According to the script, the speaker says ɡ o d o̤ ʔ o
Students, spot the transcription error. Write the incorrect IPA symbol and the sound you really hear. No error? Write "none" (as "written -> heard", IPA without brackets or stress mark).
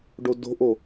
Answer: ɡ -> ɖ